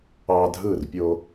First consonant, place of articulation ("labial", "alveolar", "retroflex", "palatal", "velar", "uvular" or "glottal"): alveolar